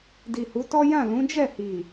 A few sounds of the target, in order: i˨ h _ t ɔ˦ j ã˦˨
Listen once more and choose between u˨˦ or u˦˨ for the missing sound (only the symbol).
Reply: u˨˦